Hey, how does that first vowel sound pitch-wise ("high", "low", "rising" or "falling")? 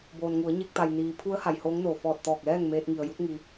low